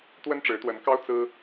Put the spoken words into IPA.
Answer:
t̪ w ə˦ n ʈ͡ʂ ɻ̩˨˦ t̪ w ə˨˦ n k ɑ˦ ʊ̯ t͡s ɹ̩˦

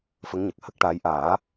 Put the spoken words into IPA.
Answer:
f ə˧˥ ŋ ɲ ə˨˩ k̚ h ə˦˥ k̚ ʈ aː˧˥ j ʔ aː˨˩˦

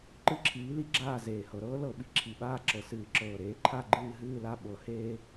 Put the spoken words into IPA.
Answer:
ǃ ɨ˦˨ ǁʰ iː˨˥ l i˨˥ ɡ͡ǁ aː˦˨ z eː˨˩ h ɤ˧˩˧ ɾ ɤː˥ l ɤ˧˩˧ ɓ i˨˩ ǁʰ i˨˩ ɓ aː˦˨ ǁ ɤ˨˩ s ɨː˧˩˧ ǁ ɤː˨˩ ɾ eː˨˥ ǃʰ a˦˨ ɡ͡ǃ ɨː˦˨ ɦ ɨː˦˨ l a˦˨ ɓ ɤ˨˥ h eː˥

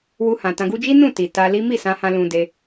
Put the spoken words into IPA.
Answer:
w u˧ h ã˨ t ã˧ ɡ u˦ d͡ʒ i˦ n ũ˦˨ t i˨ t a˧ l i˦ m i˦˨ s ã˧ h ã˧ l ũ˧ d e˧

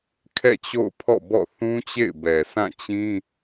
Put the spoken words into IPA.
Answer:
kʰ ɛ̰˦˨ t͡ɕ o̰˦˨ ʊ̯ pʰ ɔ̰˦˨ b ɔ̰˦˨ θ ũ˦ t͡ɕ ḛ˦˨ ɪ̯ b ɛ˨ s ã˦˨ t͡ɕ ĩ˦

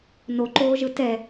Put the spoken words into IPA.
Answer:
n o ǃ oː ʒ ɯ t ɛ

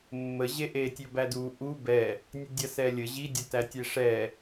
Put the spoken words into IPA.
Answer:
mː ə ʑ e ʔ e tʲ ɵ b æ d u ʔ u b ɛ | nʲ ɐ dʲ ɐ s ɛ lʲ ə ʑ i dʲ ɵ t æ tʲ e ʂ ɛ

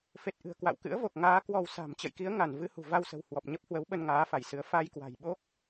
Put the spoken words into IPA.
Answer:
f e˨˩ t̚ ʔ ɨ̤˨˩ ə̯ k w a̰˧˨ w k ɨ̰˧˥ ə̯ v o˨˩ k̚ ŋ aː˨˦ k w ɔ˧ w s a̤˨˩ m t͡ɕ ə̰˧˨ j k i˨˦ ə̯ ŋ a˧˩ n v ɨ˧ h ṳ˨˩ v a˧ w s ə̤˨˩ w h w ɔ˨˩ p̚ ɲ ə˦˥ p̚ h w ə˨˦ w ɓ ə˧ n ŋ aː˨˦ f a˧˩ j s ɨ˨˦ ə̯ f a˧ j k w a̤˨˩ j ɓ o˦˥ k̚

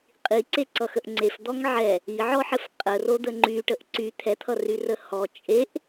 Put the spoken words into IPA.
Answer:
qʼ i ǀ e ǀ ʌ x ə ʔ ŋ͡ǀ e f d̪ ɔ ŋ ʕ ɛ | i ʕ ɔ ħ ɘ f qʼ ə r o d̪ ə ŋ͡ǃ y ʈ ə ʔ ǀ y t̪ʰ ɛ t̪ʰ ʌ r y r ə h ɔ t͡ʃʼ e ʔ

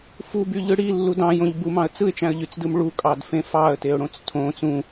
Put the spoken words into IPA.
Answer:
f u b y ʎ ɯ ɽ i lː u d ɑ̃ j õ ʎ b u m ɑ̃ ə̯ t͡s ɯ ɪ̯ t͡ʃ æ̃ ə̯ ʎ y t͡s d ɯ m ɭ u kʼ ɑ d f ẽ f ɑ ə̯ t e ʊ̯ ɽ õ t͡s tʰ õ t͡s ũ

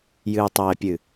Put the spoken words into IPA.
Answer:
j ɨː˨ tˤ ɛː˨ pʲ ɨ˨

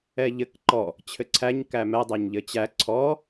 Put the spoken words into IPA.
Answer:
ɛ ʎ ɘ k ǃ ɔ | t͡ɕʰ ɘ ǀʰ æ ɲ k æ m ɛ dˤ æ ɲ ʎ ɘ t͡ɕ æ ǀʰ ɔ

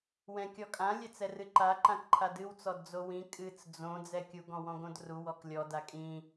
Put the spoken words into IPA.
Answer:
w ɛ̃ kʲ ɔ kʼ ã lʲ ɛ t͡s ɛ r ɨ ǃ a ǃ ã k ǃʰ a d ɨ w t͡s ɔ d d͡z o w ĩ kʼ ɨ t͡s d͡z õ d͡z ɛ kʲ u ɡ ɔ̃ w ɔ̃ ɡ õ d r u w ɔ k lʲ ɔ d a kʼ ĩ

